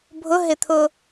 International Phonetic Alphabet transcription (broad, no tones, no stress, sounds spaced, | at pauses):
bʱ ʊ ɦ ɪ t̪ʰ ʊ